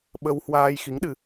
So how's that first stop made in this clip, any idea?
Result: implosive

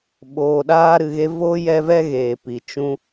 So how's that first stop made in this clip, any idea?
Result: implosive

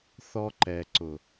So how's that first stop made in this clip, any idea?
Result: click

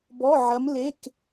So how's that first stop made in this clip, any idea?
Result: plain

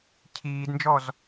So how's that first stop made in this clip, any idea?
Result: aspirated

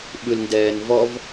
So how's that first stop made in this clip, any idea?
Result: implosive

